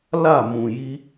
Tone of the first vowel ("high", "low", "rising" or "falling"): falling